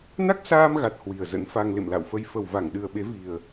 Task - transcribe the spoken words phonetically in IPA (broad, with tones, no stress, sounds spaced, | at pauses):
n a˦˥ k̚ s aː˧ m ɣ a˨˩ t̚ h w i˨˩ ə̯ z ə̰˧˥ n f a˧ ŋ l ḛ˧˨ m l a̰˧˨ w f ə˧ j f ə˨˩ w v a˧˩ ŋ ɗ ɨ˨˩ ə̯ ɓ e˨˦ v i˨˩ ə̯